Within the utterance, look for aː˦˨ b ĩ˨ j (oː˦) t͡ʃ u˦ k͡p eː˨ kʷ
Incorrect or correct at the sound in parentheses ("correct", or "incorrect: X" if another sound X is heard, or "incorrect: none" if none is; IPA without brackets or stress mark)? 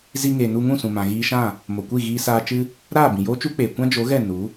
correct